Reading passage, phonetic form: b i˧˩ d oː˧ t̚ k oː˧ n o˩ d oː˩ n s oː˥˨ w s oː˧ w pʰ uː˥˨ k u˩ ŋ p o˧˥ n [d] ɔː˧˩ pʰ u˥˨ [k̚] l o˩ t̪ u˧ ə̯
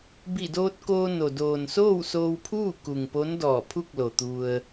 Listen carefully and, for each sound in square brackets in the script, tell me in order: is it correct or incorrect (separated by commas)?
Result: correct, correct